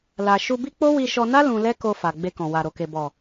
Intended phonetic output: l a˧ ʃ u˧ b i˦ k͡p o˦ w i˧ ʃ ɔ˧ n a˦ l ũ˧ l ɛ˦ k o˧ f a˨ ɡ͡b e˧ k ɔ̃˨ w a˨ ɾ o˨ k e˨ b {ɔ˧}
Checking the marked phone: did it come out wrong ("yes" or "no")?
yes